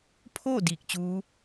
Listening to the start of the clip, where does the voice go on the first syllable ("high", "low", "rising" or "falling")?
falling